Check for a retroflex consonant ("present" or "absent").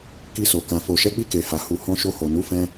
absent